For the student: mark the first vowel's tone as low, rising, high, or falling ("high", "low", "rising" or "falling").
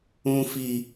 high